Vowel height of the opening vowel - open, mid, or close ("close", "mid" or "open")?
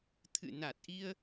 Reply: close